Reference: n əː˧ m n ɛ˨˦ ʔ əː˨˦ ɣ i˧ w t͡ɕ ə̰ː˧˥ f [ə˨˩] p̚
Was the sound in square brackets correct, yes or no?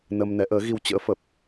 yes